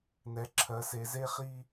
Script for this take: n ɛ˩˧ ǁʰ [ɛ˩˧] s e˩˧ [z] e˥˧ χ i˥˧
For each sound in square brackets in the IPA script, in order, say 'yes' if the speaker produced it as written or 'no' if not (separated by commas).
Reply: no, yes